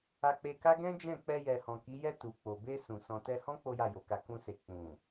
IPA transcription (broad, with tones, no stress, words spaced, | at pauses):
a˧k͡pe˧ka˦ ɡɛ̃˦d͡ʒɛ̃˦˨ k͡pɛ˧jɛ˨hɔ̃˨ ki˨˦jɛ˦˨ tu˨k͡po˨ be˧ sũ˨ sɔ̃˨tɛ˧hɔ̃˦ k͡po˦ja˦˨jo˨ka˧ kũ˧se˨ k͡pũ˨